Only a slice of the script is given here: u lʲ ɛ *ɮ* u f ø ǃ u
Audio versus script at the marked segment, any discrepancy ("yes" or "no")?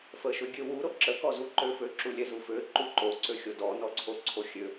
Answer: yes